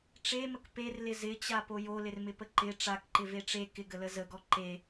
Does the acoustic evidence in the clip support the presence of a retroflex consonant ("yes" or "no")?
yes